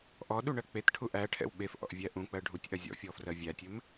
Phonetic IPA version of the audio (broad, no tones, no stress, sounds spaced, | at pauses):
ʔ ɔ ɗ u ɳ ɜ k͡p e t ʈʰ u ʔ æ ʈʰ ɛ̰ w ɓ e f ʔ ɔ̰ ʔ vʲ æ ʔ ũ k͡p ɜ ɖʱ u tʲ ʔ ɐ zʲ ɔ̰ fʲ ɔ f r ɜ vʲ æ tʲ ɘ m